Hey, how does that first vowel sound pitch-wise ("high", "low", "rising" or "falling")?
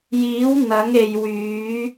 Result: rising